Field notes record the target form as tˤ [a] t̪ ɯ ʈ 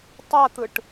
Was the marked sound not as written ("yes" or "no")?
no